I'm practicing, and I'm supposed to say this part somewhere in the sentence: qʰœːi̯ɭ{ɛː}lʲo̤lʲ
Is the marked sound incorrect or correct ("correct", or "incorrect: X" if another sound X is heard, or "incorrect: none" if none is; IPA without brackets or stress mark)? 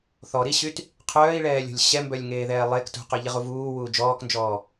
correct